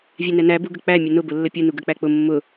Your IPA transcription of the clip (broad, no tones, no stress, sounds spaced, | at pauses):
vʲ ɛ n ɛ n æ b u ɡ ə k͡p æ mʲ ə n ʊ b ʊ lː ə pʲ u n u ɡ ə k͡p æ k͡p ʊ mː ʊ